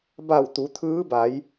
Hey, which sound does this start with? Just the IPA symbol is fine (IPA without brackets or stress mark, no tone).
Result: b